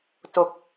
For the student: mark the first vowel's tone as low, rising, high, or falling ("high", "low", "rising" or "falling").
low